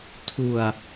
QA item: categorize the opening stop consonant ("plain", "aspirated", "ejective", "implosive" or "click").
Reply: aspirated